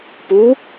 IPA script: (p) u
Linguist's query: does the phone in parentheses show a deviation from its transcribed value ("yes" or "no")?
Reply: no